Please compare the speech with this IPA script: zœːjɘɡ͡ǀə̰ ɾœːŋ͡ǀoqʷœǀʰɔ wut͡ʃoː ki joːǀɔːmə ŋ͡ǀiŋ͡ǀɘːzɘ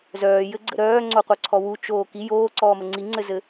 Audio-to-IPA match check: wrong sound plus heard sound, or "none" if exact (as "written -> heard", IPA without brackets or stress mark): ɘː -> ɘ